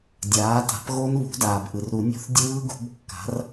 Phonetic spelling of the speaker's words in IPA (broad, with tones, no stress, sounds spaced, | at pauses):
dʲ aː˩˥ t a̤˩˥ p ɣ o˦˥ n β ṳ˩˥ d aː˩ b ʔ ɯ˩ r ɾ u˨˩˦ nʲ o̤˦˨ θ dʲ ɯː˦˥ ɡ ṳ˩˥ b kː a̤˩˥ r